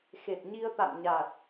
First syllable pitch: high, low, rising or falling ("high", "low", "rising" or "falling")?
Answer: low